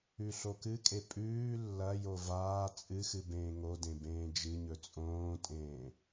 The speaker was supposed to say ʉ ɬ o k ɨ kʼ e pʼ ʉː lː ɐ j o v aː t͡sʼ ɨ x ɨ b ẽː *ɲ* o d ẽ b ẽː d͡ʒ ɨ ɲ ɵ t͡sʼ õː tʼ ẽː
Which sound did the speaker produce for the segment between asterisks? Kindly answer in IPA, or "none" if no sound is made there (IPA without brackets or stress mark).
ŋ